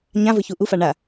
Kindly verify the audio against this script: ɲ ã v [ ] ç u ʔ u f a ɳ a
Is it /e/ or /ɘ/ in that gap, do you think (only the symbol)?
ɘ